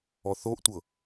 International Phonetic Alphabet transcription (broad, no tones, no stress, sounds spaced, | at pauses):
ɔ θ o ʔ tʷ ɤ